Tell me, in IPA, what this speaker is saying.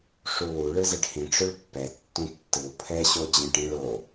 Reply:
ʂuwu ɭɯzɛɖhĩ ʈ͡ʂɵɭpːɛ tːũtːɯw pʰɛ ɕod͡ʑɛ̃ʈĩɭo

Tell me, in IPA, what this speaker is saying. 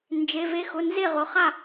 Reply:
nd͡ʒe˩˧˩ve˧xʊ˩˧˩ nze˥˩ ʁʊ˩˧˩χa˥˩

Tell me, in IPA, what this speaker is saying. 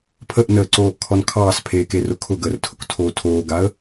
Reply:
pʰəʔnəːǀoːʔkʰɔn kʰɑːspʰeːkerʊ kʰʊɡəːrtʰʊktʰoː tʰoːɡaə̯

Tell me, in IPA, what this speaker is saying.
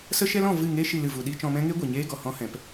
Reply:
sə˦ʃɛ˦lɔ̃˦˨ vɨ˦˨ŋe˦ ʃi˧lɨ˨ vu˧ɗi˦ t͡ʃɔ̃˧mɛ̃˦ ŋe˦ ɡʷe˨ɲeː˦ɡɔ˨ hɔ̃˦hɛ̃˨˦p

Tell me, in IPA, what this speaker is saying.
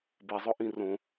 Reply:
bezˤʊ ʔĩrõ

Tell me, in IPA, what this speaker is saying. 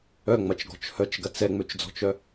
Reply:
œŋ͡mɐt͡ʃɡɔ̤t͡ʃ hœt͡ʃɡɐt͡s ɛŋ͡møt͡ʃd͡zɔ̤t͡ʃœ

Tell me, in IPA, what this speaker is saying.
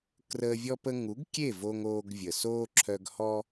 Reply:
krəː˧vʲɔ˦p ə˧ŋu˨˦ɡkʲe˦˨ vo˧ŋoː˧ɡvʲə˨soː˦ ǁʰœ˧ɡhɔ˦

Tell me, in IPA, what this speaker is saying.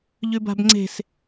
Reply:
ʎʉba̤bŋ͡ǀe̤s

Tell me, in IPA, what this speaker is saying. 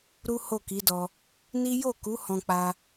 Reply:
ɾu˦ho˦˨ ki˨˦dɔ˧ | ni˦ jo˦˨ku˨˦ hɔ̃˧k͡pa˧

